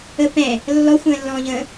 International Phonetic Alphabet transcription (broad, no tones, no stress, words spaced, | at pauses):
ə pɛ̃ | lːɔxʷə̃ːlːɔ̃ːʎə̃ː